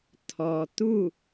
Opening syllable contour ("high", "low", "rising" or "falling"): low